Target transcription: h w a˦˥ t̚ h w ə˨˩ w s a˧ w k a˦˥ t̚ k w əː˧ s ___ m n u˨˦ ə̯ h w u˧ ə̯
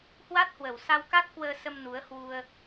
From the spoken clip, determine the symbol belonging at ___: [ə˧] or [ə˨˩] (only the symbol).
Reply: ə˧